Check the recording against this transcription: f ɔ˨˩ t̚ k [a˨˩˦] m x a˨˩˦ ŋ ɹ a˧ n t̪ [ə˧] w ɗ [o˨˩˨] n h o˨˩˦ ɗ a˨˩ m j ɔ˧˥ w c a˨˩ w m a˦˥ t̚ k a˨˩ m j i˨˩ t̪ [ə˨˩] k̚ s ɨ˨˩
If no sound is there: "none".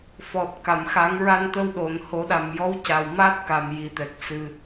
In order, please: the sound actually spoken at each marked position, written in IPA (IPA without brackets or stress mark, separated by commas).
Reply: a˨˩˨, ə˧, o˨˩˨, ɛ˨˩